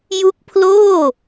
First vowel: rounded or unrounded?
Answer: rounded